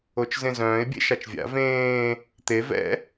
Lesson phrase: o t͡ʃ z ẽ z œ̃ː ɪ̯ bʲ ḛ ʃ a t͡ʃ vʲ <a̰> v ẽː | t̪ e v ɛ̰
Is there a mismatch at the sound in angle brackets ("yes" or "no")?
no